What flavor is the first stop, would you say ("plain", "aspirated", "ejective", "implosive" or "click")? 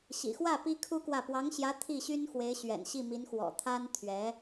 plain